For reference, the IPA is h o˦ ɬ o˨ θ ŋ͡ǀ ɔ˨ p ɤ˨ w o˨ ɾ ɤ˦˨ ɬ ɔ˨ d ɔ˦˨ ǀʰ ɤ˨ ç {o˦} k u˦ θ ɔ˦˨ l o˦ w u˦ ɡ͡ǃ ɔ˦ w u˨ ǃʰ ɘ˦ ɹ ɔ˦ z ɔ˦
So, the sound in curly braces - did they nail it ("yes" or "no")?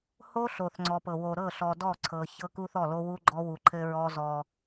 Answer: no